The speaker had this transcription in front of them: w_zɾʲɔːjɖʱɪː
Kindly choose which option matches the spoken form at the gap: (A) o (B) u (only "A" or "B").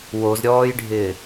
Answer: A